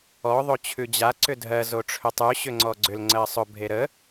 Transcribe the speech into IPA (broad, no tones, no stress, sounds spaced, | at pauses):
ɔ ðˤ o t͡ɕʰ ʉ d͡ʑ a ǀ ʏ dʱ ɜ z o ʈ͡ʂʰ ʏ tˤ ʉ ɕ ʏ ŋ͡ǀ ɔ ɡ͡ǀ ʏ l ŋ͡ǀ ɜ sˤ ʊ bʱ e ɾ ə